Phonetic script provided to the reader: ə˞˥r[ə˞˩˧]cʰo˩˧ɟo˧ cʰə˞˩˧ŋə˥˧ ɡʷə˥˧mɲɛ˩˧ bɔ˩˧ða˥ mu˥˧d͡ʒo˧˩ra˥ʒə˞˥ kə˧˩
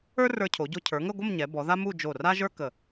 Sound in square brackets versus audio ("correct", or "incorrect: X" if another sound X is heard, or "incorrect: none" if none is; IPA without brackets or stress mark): incorrect: ə˞˧